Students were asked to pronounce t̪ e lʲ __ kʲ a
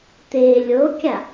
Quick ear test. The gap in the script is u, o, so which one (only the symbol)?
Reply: o